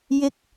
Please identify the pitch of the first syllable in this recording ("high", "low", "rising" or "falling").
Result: high